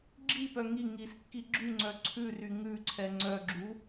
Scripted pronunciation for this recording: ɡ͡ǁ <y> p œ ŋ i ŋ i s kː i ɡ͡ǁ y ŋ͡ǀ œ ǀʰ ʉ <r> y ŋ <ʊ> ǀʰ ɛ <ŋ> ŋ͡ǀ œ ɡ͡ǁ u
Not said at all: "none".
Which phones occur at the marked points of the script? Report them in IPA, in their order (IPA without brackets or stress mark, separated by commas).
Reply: i, r, ʉ, none